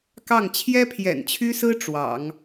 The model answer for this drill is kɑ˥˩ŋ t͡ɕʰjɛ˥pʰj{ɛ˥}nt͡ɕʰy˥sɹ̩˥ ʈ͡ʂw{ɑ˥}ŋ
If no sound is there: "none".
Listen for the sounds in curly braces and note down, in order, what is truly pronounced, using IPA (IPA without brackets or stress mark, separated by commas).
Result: ɛ̰˨˩, ɑ̰˨˩˦